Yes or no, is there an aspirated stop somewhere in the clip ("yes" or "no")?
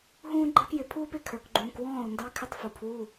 yes